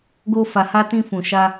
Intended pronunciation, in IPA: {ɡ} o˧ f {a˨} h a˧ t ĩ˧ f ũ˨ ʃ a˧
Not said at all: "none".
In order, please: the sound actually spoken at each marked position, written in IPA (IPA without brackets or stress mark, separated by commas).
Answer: ɡ, a˨